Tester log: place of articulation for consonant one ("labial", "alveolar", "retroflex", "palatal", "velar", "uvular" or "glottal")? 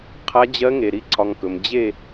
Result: uvular